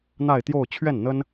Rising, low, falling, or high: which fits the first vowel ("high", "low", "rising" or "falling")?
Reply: falling